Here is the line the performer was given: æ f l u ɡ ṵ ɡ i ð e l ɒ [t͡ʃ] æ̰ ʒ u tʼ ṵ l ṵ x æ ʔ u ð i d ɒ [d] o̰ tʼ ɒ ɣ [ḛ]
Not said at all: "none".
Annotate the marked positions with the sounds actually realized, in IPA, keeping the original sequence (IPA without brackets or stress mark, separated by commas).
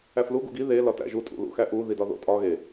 t, ð, e